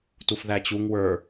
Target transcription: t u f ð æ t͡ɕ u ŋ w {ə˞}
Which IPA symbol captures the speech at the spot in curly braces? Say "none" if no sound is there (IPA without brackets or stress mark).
ə˞